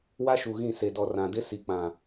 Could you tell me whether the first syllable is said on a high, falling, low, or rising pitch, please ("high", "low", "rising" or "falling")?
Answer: high